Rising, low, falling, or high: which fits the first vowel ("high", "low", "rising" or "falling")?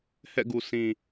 falling